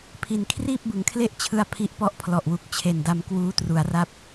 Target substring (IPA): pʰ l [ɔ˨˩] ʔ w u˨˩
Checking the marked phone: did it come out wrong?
no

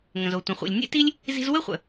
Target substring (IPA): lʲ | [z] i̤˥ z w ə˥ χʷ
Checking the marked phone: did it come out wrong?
no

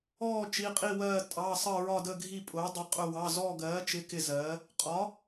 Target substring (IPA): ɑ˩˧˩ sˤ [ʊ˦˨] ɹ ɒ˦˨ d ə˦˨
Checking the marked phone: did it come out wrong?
yes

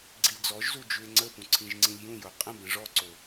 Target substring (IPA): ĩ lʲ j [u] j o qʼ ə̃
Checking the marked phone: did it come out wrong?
yes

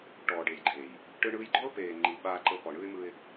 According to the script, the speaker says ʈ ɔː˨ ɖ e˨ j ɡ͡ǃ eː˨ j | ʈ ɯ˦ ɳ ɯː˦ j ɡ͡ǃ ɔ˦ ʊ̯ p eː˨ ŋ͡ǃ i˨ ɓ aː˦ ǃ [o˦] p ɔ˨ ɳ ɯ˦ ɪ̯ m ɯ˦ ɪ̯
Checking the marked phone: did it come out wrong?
yes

